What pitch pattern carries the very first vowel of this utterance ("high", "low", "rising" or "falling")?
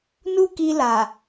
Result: high